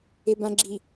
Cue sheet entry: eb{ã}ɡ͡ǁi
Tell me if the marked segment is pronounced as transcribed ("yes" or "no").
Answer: yes